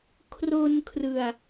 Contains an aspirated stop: yes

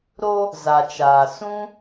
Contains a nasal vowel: yes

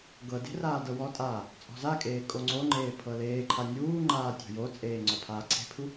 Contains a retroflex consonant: no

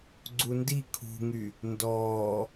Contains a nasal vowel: no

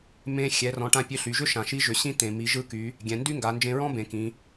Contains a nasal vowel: yes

